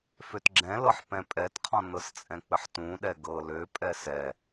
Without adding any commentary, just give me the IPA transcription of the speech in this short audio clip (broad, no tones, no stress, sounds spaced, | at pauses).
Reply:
f ø t ɡ͡ǁ ɛ̃ l ɤ ħ p ɛ̃ pʼ ɛ t qʰ ɔ̃ n ɤ s t͡sʼ ɛ̃ k͡p ɘ ħ t ũ ɗ ɛ ɡ ɤ l ø pʼ ɛ s ɛ